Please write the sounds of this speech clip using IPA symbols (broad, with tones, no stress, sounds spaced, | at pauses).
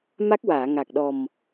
m a˦˥ k̚ w aː˨˩˨ ŋ a˨˩ k̚ ɗ ɔ˨˩ m